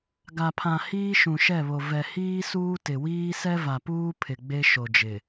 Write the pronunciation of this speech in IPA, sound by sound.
ɡa˨pʰã˨ hiː˦ʃũ˨ʃɛ˦˨βo˨ vɛ˨hiː˦ suː˦tɪ˨wiː˦ sɛ˦va˨puː˦ pʰɪ˨ɡ͡be˦ ʃo˨d͡ʒɪ˨

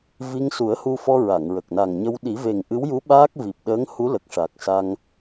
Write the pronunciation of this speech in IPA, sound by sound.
vi˧ŋsu˨˩˦ə̯hu˧fɔ˧ ɹa˨˩˨ŋɹə˨˩k̚na˨˩ŋɲə˧w ɗi˨˩˦ve˨˩ŋʔɨ˧˥wju˧˥ ɓaː˦˥k̚vi˨˩p̚ɗəː˧˥ŋ hu˧˥lə˨˩k̚ʂa˨˩k̚ sa˧ŋ

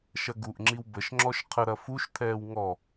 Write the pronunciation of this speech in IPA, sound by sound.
ʃɐɡuʔŋ͡ǁiw bəʃŋ͡ǁɔʃ qʰə ɾɐfuʃt̪ʰɛːw ŋɔ

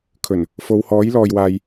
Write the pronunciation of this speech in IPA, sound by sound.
kʰɵ˨˩n | fo˨˧whɔː˨˥jlɔː˨jwaː˨j

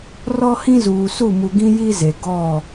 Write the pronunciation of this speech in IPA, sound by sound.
rɔ˦ hĩ˦zuː˨ su˦˨mu˨ɡĩ˦ ji˦ze˨ ɡɔ˦˨

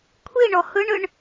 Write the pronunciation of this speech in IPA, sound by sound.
kʷʰi ɳɔhɯɳɯɳ

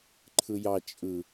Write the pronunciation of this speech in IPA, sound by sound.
ǃʰɯjɑ t͡ʃʼɯ

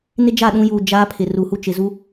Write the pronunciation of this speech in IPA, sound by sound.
nɪ˦d͡ʒa˦˨ɗũ˦juː˨ d͡ʒaː˦pʰɪ˨ ru˨hu˦t͡ʃɪ˨ zu˦

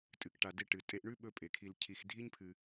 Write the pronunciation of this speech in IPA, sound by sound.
tʼɨ˨kʈa˨de˦ʈɨ˩ tʼe˦ʔɳʉ˥ ɓɵ˦pʼe˩kʰi˨l cʰi˨xdʱi˥ɲpʰɨ˨

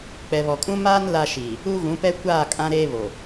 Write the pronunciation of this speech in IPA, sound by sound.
k͡pɛ˨βɔ˨kʼũ˦ maː˦n la˦ ʃiː˨ | u˦ɣũ˨˦pɛ˦ kʷaː˦˨kʼã˦ ɾeː˦βo˨

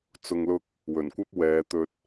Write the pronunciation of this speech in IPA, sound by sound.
t͡sʊ˧ŋlʊ˥k̚ | wɵ˨˩nkʷɐ˥p̚ wɛː˨˧t̪ɵ˧t̚

